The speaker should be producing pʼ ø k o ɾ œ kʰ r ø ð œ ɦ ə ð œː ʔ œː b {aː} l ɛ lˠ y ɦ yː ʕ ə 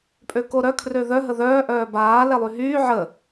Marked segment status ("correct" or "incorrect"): correct